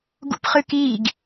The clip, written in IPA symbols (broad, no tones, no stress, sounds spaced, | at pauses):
ɡ ṵ p χ ɨ k i ɡ